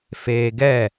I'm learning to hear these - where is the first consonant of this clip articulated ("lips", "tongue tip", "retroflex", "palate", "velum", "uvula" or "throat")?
lips